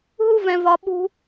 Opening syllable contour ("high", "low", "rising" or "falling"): high